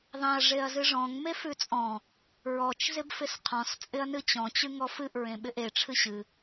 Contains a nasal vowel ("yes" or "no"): yes